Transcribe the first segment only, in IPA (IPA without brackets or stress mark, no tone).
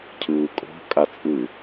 cʰ